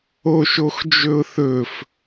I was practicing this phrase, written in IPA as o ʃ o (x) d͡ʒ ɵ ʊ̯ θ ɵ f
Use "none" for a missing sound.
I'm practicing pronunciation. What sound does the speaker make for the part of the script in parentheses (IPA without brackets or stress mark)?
x